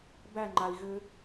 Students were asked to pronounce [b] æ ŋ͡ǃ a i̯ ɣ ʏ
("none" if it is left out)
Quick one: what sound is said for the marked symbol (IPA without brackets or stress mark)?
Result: b